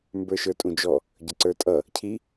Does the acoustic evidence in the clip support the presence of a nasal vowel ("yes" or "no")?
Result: yes